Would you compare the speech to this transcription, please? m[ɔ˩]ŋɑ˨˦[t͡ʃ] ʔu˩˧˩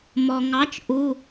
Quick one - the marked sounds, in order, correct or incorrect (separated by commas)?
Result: correct, correct